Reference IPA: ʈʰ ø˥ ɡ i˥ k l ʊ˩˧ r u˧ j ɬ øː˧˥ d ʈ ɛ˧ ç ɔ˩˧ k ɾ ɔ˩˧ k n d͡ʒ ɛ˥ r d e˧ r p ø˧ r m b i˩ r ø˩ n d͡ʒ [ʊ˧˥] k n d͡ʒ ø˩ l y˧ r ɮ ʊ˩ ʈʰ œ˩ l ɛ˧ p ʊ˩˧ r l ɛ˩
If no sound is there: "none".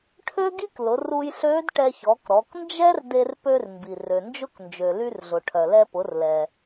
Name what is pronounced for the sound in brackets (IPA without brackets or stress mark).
ʊ˧˥